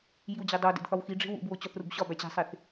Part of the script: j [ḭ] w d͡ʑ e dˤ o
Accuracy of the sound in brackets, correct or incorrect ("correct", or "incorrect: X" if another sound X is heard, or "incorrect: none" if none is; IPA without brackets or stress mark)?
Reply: incorrect: i